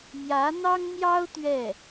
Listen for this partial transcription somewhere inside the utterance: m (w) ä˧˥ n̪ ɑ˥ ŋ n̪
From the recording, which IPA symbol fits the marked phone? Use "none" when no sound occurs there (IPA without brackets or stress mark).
j